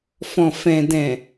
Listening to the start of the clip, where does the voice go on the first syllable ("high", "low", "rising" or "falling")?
low